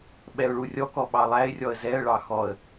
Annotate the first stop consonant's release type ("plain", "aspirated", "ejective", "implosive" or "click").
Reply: implosive